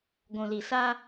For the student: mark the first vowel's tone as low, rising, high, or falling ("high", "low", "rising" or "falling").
low